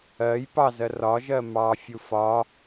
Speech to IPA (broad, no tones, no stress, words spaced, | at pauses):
ɜj pɑzɜ rɒʒɜ mɑfʲu fɒ